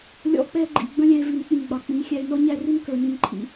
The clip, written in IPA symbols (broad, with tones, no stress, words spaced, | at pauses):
lʲɔ̰˧ k͡pɛ˧ɡ͡ǃḭ˨ ɡ͡bə̃˦lʲæ̃˧e̯ vi˨nk͡pĩ˨ ɡ͡bɑ˨k͡pĩ˨˦xʲæ˧e̯ nɔ˦ ɲæ˧ri˧n kə˞˨nĩ˦˨nǃʰḭ˧